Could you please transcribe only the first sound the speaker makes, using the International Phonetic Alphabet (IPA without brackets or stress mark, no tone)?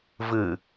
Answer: v